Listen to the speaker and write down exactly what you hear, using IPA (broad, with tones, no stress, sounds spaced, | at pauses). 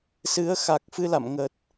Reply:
s ɨ˨˦ ə̯ x a˨˩ k̚ f ɨ˧ l a̰˧˨ m ŋ ə˨˩ t̚